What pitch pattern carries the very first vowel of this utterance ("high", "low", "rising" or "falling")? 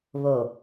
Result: low